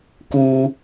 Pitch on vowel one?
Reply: low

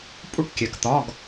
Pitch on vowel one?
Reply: falling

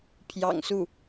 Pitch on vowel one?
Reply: low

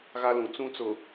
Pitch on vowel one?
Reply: high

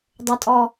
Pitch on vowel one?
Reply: low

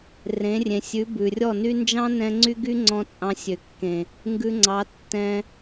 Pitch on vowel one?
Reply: rising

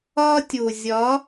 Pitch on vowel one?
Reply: high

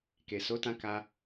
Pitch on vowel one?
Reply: low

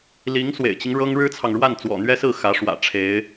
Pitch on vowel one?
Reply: rising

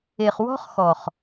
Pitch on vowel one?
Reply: low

